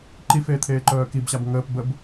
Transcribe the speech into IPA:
ǃ i f eː t̪ʰ eː ǃ œː k i b ɕ a b ŋ əː p b ə b

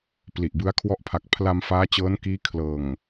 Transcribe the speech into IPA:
p l i˨˩ ʔ b ɯ˦˥ a̯ kʰ w ɔ˦˥ ʔ pʰ a˨˩ k̚ pʰ l a˧ m f aː˦˥ t͡ɕ ɤː˦˥ n k iː˦˥ kʰ l ɤː˨˩ ŋ

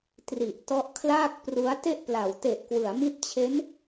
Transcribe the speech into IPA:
t r i˨˩ ʔ t ɔ˦˥ ʔ kʰ l aː˥˩ k̚ p r u˦˥ a̯ t e˥˩ ʔ p l a˨˩ w t e˨˩ ʔ k w ɯ˩˦ a̯ m i˦˥ t̚ t͡ɕʰ e˦˥ n

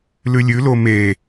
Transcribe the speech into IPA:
l ʉ lʲ ʉ l o m e

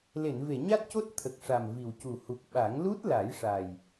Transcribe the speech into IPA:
l e˨˩˨ n v e˨˩˨ ɲ a˦˥ t̚ c o˦˥ t̚ t̪ʰ ə˨˩ k̚ ʂ a˨˩ m v i˨˩ w c u˨˩ h u˨˩ k̚ ɓ a˨˩˦ ŋ l u˦˥ t̚ l a˨˩˦ j ʂ a˨˩ j

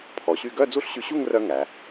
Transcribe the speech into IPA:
pʰ ɔ˩˧ ɕ y˥˧ ɡ œ˥˧ d͡z u˥˧ ɬ ɕ y˧ ɕ u˥˧ ŋ r œ˥ ŋ æ˩˧

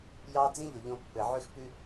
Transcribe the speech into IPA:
j ɑ˦ d͡z ĩ˦ ʎ o˨ ʎ õ˧ pː ɘ˨ ʕ ʉ˦ x p ʉ˦

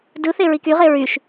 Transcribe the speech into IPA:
d ɯ θ e ɹ i k y ʁ e ɹ y ʃ

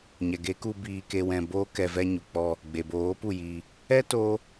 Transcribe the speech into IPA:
ɲ ɛ˨ ɡ e˨˦ k u˧ b iː˧ k e˧ w ɛ̃˧ b oː˦ k ɛ˧ v ɛ˧ ɲ u˨ k͡p ɔ˧ | ɡ͡b e˨ b oː˨˦ p u˦˨ j iː˧ | ɛ˦ t oː˦

